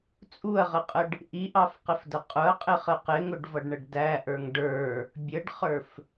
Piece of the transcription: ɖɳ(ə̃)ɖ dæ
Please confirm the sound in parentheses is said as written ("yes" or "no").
no